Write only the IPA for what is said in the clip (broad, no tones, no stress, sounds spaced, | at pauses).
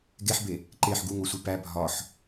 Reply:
ɡ e ħ b e | ǃ e ħ ɡ u ŋ o sʷ i p æ bʱ ɒ ħ